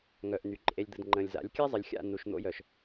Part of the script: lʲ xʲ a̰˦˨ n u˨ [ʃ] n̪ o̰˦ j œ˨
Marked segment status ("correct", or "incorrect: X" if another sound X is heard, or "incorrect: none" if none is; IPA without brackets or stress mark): correct